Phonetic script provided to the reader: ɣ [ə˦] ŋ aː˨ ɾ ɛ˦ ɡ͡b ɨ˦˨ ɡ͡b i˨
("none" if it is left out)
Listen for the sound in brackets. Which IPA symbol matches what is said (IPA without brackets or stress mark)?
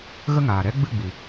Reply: ə˦